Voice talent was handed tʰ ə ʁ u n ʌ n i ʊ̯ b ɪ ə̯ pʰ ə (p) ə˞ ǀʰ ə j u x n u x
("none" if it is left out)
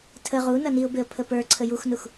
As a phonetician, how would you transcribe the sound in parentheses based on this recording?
p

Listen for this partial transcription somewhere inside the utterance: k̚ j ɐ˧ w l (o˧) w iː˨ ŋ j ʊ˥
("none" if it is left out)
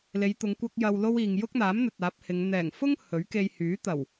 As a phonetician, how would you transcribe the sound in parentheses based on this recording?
o˥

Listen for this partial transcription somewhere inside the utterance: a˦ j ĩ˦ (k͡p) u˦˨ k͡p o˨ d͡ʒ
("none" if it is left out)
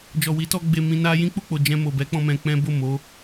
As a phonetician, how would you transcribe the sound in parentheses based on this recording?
k͡p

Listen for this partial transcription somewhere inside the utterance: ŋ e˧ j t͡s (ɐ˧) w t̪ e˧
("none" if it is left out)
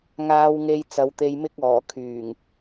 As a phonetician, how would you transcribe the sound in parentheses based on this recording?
ɐ˨˧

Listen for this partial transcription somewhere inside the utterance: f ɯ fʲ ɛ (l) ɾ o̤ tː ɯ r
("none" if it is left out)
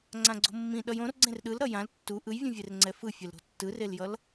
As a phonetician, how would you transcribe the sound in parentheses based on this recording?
l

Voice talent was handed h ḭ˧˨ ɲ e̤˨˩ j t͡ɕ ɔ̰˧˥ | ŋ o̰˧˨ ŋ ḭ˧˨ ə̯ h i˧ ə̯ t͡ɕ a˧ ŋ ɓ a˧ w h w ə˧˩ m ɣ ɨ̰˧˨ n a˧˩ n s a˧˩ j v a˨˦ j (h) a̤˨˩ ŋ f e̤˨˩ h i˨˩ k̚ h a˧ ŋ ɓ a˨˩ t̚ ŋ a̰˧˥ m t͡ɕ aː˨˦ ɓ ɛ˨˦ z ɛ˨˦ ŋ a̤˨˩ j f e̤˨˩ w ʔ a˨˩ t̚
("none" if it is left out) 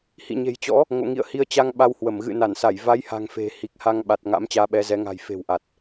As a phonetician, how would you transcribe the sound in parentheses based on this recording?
h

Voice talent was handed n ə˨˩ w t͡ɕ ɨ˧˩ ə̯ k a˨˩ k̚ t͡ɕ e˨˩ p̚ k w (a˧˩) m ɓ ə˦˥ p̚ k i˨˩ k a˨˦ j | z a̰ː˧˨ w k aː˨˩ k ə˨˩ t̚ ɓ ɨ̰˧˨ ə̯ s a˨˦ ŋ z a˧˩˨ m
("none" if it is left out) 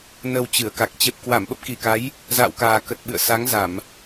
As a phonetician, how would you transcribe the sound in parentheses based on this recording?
a˧˩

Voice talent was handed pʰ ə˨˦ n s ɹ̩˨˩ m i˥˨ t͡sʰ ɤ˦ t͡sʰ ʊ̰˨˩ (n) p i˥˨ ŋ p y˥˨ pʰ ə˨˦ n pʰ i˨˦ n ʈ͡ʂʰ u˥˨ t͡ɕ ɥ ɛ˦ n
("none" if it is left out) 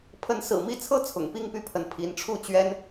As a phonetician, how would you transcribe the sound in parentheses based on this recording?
ŋ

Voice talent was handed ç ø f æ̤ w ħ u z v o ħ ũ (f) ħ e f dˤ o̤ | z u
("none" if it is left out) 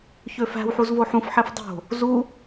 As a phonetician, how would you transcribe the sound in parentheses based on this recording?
f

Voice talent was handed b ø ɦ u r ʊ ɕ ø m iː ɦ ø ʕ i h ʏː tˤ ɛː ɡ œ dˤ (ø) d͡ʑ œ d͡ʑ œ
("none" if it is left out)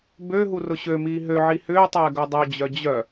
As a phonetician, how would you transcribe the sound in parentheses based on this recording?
ø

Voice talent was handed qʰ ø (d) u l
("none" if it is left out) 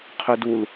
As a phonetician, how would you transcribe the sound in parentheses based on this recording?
d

